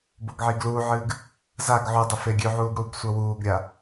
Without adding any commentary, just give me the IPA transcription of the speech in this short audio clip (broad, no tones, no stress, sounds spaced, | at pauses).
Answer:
b o ɡ ʕ iː ɡ l uː ʕ ɨː ɡ | z a ɡ ʕ u dˤ ɵ f e ɡʲ ʉ ʕ uː ɡ ɽ uː ɡ sʷ ɐ w uː ɡ ɾʲ a